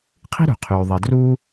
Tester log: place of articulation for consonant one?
uvular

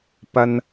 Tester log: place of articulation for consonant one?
labial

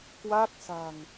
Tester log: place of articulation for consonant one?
velar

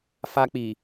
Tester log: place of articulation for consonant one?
labial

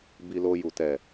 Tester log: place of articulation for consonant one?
labial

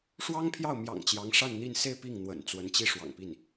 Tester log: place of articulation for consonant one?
retroflex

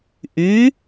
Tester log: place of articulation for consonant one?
glottal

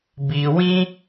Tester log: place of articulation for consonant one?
labial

